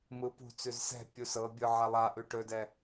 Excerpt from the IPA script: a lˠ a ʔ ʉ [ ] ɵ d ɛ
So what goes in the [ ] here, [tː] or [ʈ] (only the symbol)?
ʈ